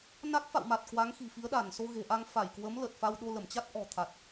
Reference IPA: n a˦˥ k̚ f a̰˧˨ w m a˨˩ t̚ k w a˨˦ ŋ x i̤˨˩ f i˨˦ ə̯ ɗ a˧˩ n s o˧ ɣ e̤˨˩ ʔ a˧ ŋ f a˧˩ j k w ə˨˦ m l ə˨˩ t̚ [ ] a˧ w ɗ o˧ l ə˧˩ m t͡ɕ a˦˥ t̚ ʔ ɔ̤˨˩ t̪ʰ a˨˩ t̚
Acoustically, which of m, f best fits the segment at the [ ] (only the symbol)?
f